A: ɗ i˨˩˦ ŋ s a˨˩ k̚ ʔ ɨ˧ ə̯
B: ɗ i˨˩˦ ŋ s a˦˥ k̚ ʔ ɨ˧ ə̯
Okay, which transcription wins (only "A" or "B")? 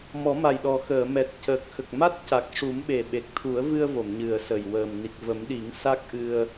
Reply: B